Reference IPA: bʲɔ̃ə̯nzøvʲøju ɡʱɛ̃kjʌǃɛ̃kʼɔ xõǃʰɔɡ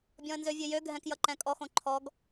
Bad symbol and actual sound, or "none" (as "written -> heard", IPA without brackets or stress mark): u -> ø